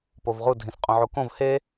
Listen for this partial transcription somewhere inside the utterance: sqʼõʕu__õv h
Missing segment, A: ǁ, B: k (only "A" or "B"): B